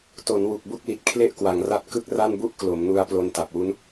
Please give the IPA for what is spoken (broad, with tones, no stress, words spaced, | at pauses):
to˩˦nwu˨˩k̚ bu˥˩k̚li˨˩t̚kʰle˥˩ʔ kwa˩˦ŋra˦˥t̚ kɯ˥˩k̚ra˥˩nbu˥˩ʔ klo˩˦mnu˧a̯ plo˧nta˨˩p̚wu˦˥n